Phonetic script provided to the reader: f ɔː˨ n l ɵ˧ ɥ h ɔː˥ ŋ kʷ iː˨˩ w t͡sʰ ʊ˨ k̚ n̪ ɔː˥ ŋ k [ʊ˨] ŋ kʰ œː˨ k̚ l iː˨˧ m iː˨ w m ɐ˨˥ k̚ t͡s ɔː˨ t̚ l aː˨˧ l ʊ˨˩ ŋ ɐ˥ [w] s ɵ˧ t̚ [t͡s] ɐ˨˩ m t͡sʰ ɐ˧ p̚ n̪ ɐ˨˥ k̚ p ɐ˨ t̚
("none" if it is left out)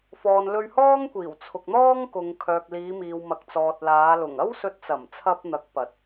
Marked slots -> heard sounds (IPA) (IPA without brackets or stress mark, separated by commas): ʊ˨, w, t͡s